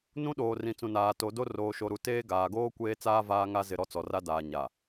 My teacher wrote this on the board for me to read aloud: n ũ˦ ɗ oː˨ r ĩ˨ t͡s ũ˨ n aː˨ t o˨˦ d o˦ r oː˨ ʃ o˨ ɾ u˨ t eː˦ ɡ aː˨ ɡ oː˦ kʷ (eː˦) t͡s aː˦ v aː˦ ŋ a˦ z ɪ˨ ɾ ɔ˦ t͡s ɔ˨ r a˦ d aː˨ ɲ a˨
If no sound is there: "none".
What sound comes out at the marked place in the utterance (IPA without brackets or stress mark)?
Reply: eː˦